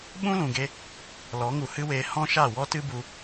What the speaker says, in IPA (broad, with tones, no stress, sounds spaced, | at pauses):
ɓ ũ˦ l ũ˨ ɡ e˧ | l ɔ˨˦ ŋ u˨ h ɨ˦ w eː˧ h ɔ̃˦ ʃ a˦˨ w ɔ˦ t ɨ˦ b u˧